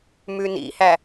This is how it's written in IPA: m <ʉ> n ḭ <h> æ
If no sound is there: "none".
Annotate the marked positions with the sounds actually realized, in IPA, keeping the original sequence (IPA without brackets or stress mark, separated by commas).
ʉ, h